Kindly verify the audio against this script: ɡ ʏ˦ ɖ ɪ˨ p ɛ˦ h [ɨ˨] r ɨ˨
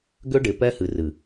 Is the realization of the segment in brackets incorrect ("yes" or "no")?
no